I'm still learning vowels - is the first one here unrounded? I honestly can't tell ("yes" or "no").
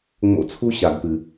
no